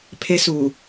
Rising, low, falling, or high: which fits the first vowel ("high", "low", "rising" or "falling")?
high